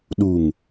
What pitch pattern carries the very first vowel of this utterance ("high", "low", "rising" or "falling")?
low